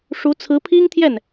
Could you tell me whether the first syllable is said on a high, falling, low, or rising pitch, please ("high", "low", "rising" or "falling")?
rising